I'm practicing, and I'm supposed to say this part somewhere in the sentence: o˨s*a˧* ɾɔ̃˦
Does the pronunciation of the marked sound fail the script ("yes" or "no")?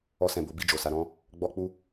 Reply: no